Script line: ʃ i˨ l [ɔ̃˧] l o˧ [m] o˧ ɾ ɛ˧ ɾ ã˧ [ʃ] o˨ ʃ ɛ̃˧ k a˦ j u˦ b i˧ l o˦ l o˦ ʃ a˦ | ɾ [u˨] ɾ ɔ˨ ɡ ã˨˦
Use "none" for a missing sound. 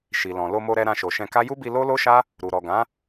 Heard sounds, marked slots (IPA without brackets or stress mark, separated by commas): ɔ̃˨, m, ʃ, u˨